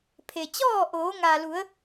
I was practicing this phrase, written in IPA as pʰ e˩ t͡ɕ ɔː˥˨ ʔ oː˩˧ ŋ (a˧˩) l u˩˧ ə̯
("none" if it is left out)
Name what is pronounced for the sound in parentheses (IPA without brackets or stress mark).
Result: a˩